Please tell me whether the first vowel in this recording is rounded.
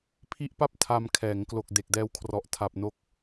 no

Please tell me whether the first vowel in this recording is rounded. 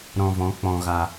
yes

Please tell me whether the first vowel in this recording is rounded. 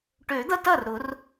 yes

